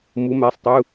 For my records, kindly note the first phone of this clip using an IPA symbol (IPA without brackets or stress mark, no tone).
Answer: m